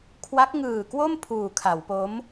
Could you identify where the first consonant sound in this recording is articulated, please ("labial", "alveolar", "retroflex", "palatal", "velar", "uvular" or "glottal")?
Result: velar